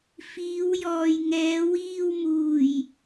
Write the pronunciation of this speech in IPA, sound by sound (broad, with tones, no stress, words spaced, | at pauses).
fiː˨˧wjɔː˨jŋɛː˨˧ wiː˧wmuː˨˩j